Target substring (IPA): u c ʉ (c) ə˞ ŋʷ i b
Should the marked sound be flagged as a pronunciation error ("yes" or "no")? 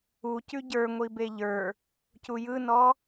yes